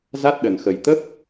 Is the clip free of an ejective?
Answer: yes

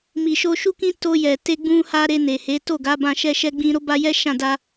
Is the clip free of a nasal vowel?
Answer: no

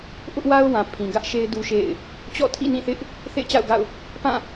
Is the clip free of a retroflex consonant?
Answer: yes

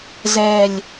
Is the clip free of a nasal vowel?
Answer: yes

